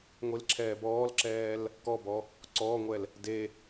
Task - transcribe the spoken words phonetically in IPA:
ŋʷil ǁʰɛːbɔːlǁɛːl | kɔbɔ | ǀɔːŋʷɛl | de

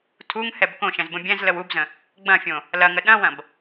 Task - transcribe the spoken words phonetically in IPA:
tʰuŋhɛb kõʃɛ̃z bə̃bʲɛ̃zləw ubzə̃ | ɡ͡bɐ̃fʲõ | lɐŋə ɗɐ̃wɐ̃b

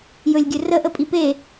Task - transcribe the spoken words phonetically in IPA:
jɵlʲɡʲɵrə ʔəpʼipe

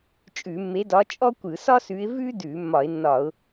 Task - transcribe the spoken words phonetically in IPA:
t͡ʃʼʉ˧˩˧ mːe˨˦dɒ˨˦ t͡ʃʼɔ˥kʷɯ˧˩˧ sɒ˥sʉ˨˦ɪ̯ vʉ˥dʉ˧˩˧ mːɒ˧˩˧ɪ̯nːɒ˧˩˧ʊ̯

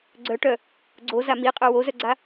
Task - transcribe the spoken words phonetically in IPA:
ɡ͡ǀœʈœ | ɡ͡ǀoza miqʼœ wozœɡ͡ǀa

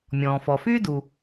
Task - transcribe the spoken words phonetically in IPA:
mʲɔ̃ː˩fɔ˩fyː˥du˩

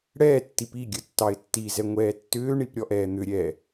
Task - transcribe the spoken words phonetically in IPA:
ɽɛ tːipiɡʲə tːɑɪ̯tːizɛ ŋʷɛːtːʏːɳip ɾʲɔʔɛːn̪ʏɾʲɛ

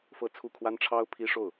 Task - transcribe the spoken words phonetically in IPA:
fɤ˥˧t͡sʰu˥˩ kʰwa˥nʈ͡ʂʰɑ˥ʊ̯ pʰi˥ʂo˥˩ʊ̯

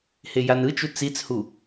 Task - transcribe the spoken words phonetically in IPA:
hejanɯt͡ʃu t͡sit͡shu

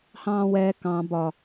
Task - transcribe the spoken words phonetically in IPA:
hɑ̃ːwɛ kɑ̃ bɒ

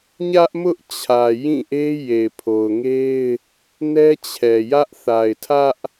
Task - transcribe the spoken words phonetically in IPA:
ɲä˦ʔmʊ˦ʔt͡ɕʰä˨ jĩ˦˨ʔe˦ je˨ɪ̯pʰo˨ʊ̯ŋe˦ɪ̯ | nɛ˦t͡ɕʰɛ˨jä˦ʔ θa˨ɪ̯tʰä˦ʔ

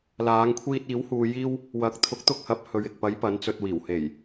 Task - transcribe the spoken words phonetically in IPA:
laː˨˧ŋkʷʰiː˧t̚ iː˨˥whuː˧ jiː˥w | wɐ˨˥k̚ t̪ʰʊ˨˥k̚t̪ʊ˧k̚hɐ˨˥p̚hɵ˨ɥ ɪ˨k̚pɐ˨˥j pɐ˨˥nt͡sɵ˧t̚wiː˨˩w he˨˩j

